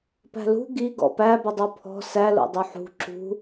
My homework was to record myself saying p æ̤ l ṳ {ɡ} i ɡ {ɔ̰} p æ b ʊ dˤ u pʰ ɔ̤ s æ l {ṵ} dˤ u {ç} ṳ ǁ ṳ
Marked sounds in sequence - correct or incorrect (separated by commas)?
correct, correct, incorrect, incorrect